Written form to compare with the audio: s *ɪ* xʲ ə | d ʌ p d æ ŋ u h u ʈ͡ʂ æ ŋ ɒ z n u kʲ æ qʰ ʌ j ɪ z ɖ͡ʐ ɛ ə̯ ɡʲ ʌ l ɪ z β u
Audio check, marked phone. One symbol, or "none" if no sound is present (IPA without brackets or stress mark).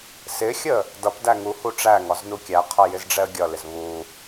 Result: ɪ